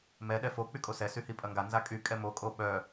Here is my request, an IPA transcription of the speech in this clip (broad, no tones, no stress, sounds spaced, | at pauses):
m ɛ ɗ ɛ f o k͡p y kʼ o s ɛ s y h i pʼ ɐ ŋ ɡ a n z a kʼ y kʼ ɛ m o kʼ o ɓ œ